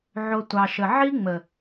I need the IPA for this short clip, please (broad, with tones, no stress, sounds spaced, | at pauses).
ʕ o˧ tʷ ɑ˨ ʃ ə˨ ʕ i˦ ŋ͡m ə˨